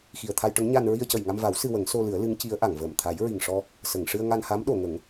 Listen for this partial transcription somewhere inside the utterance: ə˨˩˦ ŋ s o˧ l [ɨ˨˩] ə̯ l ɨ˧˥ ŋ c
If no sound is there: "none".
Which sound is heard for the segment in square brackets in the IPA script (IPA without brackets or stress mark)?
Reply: ɨ˨˩˦